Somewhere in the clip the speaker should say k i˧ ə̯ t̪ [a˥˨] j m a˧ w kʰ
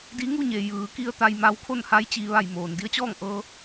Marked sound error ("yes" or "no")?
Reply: yes